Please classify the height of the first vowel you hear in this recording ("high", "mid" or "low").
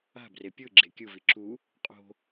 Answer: low